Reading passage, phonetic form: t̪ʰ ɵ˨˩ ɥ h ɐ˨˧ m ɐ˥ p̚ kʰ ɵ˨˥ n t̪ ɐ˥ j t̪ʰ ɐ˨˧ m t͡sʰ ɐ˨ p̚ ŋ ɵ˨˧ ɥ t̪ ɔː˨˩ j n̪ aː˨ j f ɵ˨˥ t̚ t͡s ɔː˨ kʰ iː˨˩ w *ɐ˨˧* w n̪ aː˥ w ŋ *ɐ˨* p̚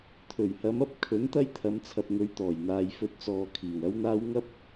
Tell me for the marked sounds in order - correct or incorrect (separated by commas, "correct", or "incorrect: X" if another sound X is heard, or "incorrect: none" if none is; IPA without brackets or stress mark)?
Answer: incorrect: ɐ˥, incorrect: ɐ˥